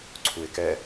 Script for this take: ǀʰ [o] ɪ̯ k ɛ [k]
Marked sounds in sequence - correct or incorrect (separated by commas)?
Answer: incorrect, incorrect